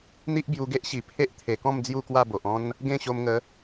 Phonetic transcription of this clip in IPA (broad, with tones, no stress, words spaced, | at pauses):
n̪i˦ʔbju˧ɡe˦ʔɕi˨˩ pʰe˦ʔt̪ʰe˨˩kɔ̃˥˧m d͡zju˥˧kwa˥˧bo˨ʔɔ̃˦n | ɡẽ˥˧ɕo˧mŋə˨˦